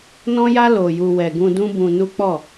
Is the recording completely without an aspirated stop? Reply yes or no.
yes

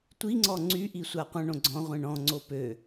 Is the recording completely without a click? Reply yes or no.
no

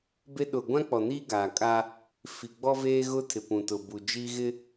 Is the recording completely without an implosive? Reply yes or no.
no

